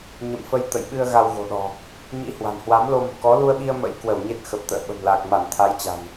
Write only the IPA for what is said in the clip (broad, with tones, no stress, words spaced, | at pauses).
ɲə̰˧˨mfə˧j t̪ə̰˧˨jɓɨ˧ə̯ ɣa˧wɣo̤˨˩ɗɔ̤˨˩ | ɲḭ˧˥hwa̤˨˩nhwa˨˦m lo˧mṳ˨˩kɔ˨˦ lu˧ə̯ɓi˧ə̯ mə̰˧˥jkwə˧˩w ɲe˦˥t̚xə˨˩p̚t̪ə̰ː˧˨ ɓə̤˨˩mla˨˩k̚ ma˧˩nt̪ʰa˨˦jt͡ɕa̤˨˩n